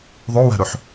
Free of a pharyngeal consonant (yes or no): no